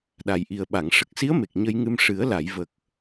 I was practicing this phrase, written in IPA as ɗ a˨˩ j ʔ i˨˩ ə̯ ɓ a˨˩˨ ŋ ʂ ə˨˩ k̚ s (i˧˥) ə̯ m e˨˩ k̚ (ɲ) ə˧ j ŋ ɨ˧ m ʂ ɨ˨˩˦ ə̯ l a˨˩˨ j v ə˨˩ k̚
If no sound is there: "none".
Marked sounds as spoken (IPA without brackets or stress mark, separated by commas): i˧˥, ɲ